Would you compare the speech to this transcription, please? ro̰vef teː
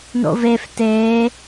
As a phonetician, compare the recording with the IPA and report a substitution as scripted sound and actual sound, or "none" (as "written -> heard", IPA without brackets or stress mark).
r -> n